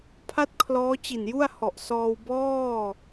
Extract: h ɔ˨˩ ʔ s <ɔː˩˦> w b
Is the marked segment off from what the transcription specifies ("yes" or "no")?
yes